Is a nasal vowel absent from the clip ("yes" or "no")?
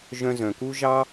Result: no